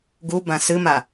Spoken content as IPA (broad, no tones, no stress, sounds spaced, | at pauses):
ɡ u b ã s ɨ m a